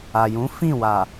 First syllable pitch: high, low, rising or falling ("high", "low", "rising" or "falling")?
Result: low